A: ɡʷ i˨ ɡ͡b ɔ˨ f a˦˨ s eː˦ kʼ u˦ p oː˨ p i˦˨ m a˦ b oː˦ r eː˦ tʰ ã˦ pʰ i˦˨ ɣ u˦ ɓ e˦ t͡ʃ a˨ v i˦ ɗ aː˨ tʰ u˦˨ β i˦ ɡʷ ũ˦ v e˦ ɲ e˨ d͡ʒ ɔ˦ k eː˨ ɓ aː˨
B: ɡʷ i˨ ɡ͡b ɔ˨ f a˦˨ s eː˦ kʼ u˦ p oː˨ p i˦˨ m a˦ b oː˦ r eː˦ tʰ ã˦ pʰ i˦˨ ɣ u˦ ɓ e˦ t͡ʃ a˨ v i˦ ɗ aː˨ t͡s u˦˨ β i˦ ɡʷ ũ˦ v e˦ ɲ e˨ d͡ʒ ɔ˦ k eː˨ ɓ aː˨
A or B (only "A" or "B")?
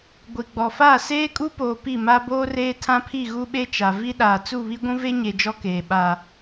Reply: B